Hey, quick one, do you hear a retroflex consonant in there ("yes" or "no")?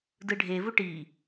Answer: yes